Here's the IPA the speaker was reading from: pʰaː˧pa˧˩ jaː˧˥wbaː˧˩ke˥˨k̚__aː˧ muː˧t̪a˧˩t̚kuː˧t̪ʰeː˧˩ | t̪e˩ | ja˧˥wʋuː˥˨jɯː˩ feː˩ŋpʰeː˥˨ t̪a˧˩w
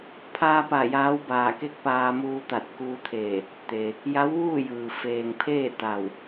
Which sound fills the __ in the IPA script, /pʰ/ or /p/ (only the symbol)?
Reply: p